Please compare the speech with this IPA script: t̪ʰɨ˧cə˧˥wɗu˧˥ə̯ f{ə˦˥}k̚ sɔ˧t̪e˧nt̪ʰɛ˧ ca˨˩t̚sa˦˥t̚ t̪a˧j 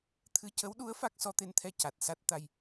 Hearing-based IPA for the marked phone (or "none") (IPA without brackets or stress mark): a˦˥